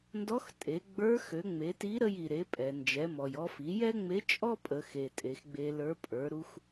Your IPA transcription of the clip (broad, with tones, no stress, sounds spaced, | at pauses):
n d ɔ˧˥ x tʼ e˩˧ ɡ͡b ə˞˧˥ x ø˩˧ ŋ͡m e˩˧ t i˧˥ ɾ ə˧ j i˩ ɾ e˩˧ pʼ ɛ˩ n d͡ʒ ɛ˩˧ m ɔ˩ j ɔ˧ f i˩˧ j ɛ˥ ŋ͡m e˧˥ t͡ʃʼ ɔ˥ pʼ ə˩˧ x e˩ tʼ e˩˧ x ɡ͡b e˧ l ə˞˧˥ pʼ ə˞˩˧ ɾ u˧ x